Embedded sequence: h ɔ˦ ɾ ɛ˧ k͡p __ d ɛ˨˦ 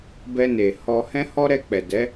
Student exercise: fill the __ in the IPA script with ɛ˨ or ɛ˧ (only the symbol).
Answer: ɛ˨